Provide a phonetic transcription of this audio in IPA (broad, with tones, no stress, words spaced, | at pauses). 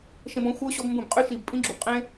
ʃẽ˧bɔ̃˨˦ xʷə˞˦ ɕɔ˦bmbũ˦˨bqʼy˦ ʃi˨b pʼĩ˦ɡ͡ǁu˨bqʼẽ˦